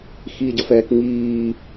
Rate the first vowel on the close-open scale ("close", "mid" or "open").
close